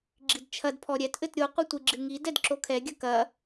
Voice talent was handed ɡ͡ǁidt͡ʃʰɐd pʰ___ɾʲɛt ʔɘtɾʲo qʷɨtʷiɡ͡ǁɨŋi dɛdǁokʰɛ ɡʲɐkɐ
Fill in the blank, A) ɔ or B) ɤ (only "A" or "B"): A